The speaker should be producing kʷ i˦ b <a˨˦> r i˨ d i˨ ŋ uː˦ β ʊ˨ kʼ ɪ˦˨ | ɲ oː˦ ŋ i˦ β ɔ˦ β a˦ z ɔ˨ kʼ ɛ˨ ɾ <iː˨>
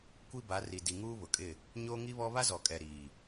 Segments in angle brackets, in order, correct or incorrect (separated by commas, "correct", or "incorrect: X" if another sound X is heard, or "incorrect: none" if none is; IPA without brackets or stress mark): correct, correct